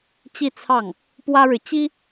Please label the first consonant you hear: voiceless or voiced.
voiceless